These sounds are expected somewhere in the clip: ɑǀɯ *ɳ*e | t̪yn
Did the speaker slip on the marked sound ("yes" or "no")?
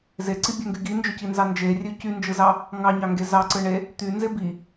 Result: no